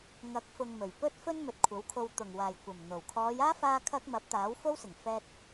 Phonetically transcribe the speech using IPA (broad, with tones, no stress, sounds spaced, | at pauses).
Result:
ŋ ɐ˨˥ k̚ f ʊ˧ ŋ m ɵ˨˩ ɥ p ɵ˥ t̚ f ɵ˥ n m ɵ˨˥ t̚ kʷʰ ɐ˨˥ w kʰ o˧ w t̪ ʊ˨˩ ŋ w aː˨˩ j kʷ ɐ˨˩ m n̪ o˨˩ w kʰ ɔː˨˧ j aː˥ f aː˥ kʰ ɐ˥ k̚ m ɐ˨˥ p̚ t̪ aː˨˥ w f o˥ w s ɪ˨˩ ŋ f ɛː˧ t̚